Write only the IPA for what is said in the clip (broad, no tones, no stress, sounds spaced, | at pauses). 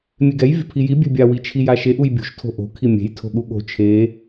mʲ e ɡ ɛ j vʲ o̤ pʰ i j i bʲ ɛ̤ bʲ a w i t͡ʃʰ i j a ʃ e ʔ u j bʲ ṳ ʃ tʰ o̤ ʔ o̤ kʰ i mʲ e̤ j tʰ o̤ ɠ u ɠ o̤ t͡ʃʰ e